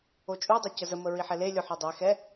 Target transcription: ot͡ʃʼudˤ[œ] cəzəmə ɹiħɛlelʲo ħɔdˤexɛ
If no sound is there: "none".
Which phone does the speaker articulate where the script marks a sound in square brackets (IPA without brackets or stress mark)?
œ